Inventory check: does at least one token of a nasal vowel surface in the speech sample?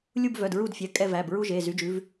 no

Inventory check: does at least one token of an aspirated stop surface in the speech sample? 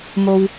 no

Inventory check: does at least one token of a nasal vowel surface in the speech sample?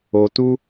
no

